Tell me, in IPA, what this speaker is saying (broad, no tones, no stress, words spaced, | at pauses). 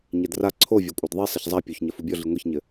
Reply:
ɲɛdra ǀʰo vʲakʷʼadðˤi sˤɐçzˤa pʲoçɲɐ fubʲɔɮi ŋʷeçɲɘ